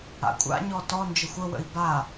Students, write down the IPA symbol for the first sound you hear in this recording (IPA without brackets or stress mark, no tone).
a̰